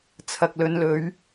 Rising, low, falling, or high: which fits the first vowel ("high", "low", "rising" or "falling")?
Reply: low